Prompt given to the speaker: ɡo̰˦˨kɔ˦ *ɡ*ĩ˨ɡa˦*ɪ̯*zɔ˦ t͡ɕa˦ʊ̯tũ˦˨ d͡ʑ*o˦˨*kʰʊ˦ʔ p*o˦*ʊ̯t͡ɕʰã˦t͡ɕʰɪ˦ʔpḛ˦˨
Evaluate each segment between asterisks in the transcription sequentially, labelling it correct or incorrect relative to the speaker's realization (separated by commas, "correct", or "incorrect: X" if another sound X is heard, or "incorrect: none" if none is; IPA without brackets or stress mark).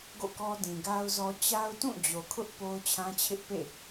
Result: incorrect: d, incorrect: ʊ̯, incorrect: o˨, correct